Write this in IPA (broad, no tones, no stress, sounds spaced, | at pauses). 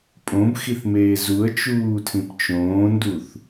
pʼ õ b x i θ m eː z u ə̯ t͡ʃ uː tʰ ĩ p t͡ʃ õː n d u θ